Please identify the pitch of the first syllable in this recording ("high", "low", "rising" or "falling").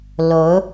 rising